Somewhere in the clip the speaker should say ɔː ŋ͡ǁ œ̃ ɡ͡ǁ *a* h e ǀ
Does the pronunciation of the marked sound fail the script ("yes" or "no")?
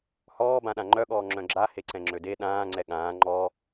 no